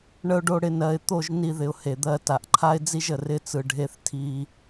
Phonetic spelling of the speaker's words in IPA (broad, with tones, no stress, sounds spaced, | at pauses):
ɳ ə˧ ʊ̯ ɖ o˧ ɽ ɪ˧ n ɜ˨ ɪ̯ t̪ o˦˨ ʒ n i˧ ð ɪ˨ ʊ̯ h e˨ d̪ ɜ˧ t a˨ ʔ ǃʰ a˦ ɪ̯ d͡z i˦ ʒ ə˨ r ɪ˦ t͡s ɯ˧ ɖʱ e˦ θ tʰ i˦